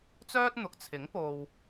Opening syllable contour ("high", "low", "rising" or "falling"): high